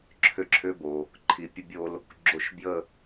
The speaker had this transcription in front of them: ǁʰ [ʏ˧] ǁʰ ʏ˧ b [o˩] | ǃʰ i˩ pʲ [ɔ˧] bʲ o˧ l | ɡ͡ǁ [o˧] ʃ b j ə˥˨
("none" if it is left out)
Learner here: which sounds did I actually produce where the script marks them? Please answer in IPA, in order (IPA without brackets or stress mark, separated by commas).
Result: ʏ˧, o˩, ə˧, o˧